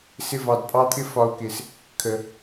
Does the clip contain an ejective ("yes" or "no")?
yes